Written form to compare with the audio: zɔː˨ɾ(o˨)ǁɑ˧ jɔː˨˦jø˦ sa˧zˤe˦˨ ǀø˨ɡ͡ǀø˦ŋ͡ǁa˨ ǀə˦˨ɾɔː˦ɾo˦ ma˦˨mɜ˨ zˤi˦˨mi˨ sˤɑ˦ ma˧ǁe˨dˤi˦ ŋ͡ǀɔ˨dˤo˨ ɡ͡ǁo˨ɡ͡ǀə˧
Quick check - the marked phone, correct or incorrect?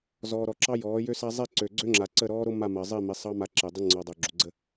incorrect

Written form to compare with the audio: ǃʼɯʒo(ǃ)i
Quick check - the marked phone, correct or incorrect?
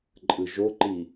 correct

